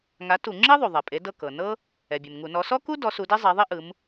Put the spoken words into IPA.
ŋ a˨˦ t u˧˩˧ ŋ͡ǁ i˥ ðˤ u˩ ðˤ ɛ˩ pʼ e˨˦ d ɤ˦˨ k ɤ˩ n ɤ˥ | ɛ˩ bʲ e˩ m ŋ u˧˩˧ n ɔ˨˦ s ɔ˥ k u˥ d ɔ˨˦ s u˨˦ d e˥ zˤ e˨˦ ðˤ i˥ ʔ ɯ˨˦ m

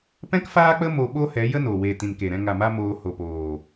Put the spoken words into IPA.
p ɛ̃˦ k f aː˦ k͡p ə˦ m o˧ ɓ o˦ h ɛ˨˦ j ə˦ n o˨ w e˨ t ĩ˨ n k e˨ ɾ ɛ̃˧ ŋ a˨ m a˧ m oː˧ h o˨ p oː˨

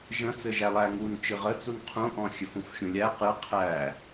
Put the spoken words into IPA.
ʒ ə̃ t͡s ɘ ʒ æ lˠ æ ŋ u n t͡ʃ ɨ ʁ ə t͡s u n qʰ ũ ʔ ɔ̃ xʲ ɘ f ũ f xʲ ũ lʲ æ q ɨ qʰ æ

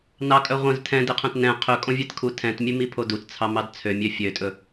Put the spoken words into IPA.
n ɑ kʼ œ ʁʷ œ̃ z tʰ ɛ̃ d e qʰ œ̃ t n ɛ̃ qʰ ɵ kʼ õ vʲ ɛ t kʰ u tʰ ɛ̃ t mʲ ʉ m i pʰ o d u t t͡sʰ ɑ m ɑ d t͡sʰ ø mʲ ø fʲ ø tʼ ɵ

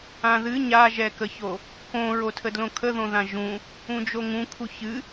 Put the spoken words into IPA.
ã ð ɨ ɲ a ʒ ɛ k ə ç o | k õ ɹ o tʰ ə d l õ kʰ ə ð õ ð ã ʒ ũ | ũ d͡ʒ o ŋ ũ kʰ u ç ɨ

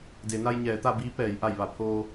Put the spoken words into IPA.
d e˩˧ n a˧ j ɲ ɛː˩˧ t̪ a˥˨ b iː˧˥ p ɛː˩˧ j ʔ a˧˩ j ʋ a˧˩ pʰ oː˧

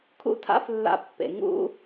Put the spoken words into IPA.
kʰ ṵ˦˥ tʰ a̰˦˥ f lː a̰˨˦ pː ḛ˩ ŋ ṵ˦˥

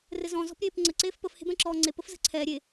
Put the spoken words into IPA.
r ɘ z ɔ̃ z ɔ̤ p ɾʲ eː p ŋ͡ǀ ə ǀ eː f p ə f h e̤ b ɛ̃ ǁ ɔː ŋ͡ǀ e p ə f z ə̤ ǀʰ ɛː ɾʲ e

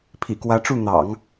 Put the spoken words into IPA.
pʰ ḭ˨˩ k w ä˧˥ ʈ͡ʂ u˥˩ n̪ ɑ̰˨˩˦ ŋ

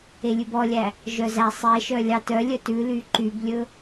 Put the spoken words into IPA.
e lʲ ʉ b ɔ lʲ æ | ʒ œ z æ sˤ e ʃ œ lʲ ɑ t œ lʲ œ t ʉ l y ǃ y b lʲ ɵ

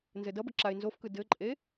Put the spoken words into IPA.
n z ɘ d ʌ b ə ǁ a ɪ̯ n z o f k ɯ d ɘ ǃʼ e

